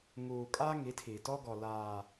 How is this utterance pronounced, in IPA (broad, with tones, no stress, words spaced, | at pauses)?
ŋuː˨kʼa˦ ŋi˨˦tʰi˨tɔ˦ ɡɔ˨laː˨